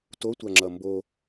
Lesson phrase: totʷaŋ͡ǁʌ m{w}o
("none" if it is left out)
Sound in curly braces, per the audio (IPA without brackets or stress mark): b